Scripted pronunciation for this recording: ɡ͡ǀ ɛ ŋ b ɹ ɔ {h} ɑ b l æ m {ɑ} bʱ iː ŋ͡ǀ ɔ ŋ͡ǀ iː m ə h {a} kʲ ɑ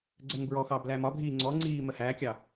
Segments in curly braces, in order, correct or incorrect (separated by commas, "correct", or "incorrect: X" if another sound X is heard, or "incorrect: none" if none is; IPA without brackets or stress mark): incorrect: x, incorrect: ɒ, incorrect: æ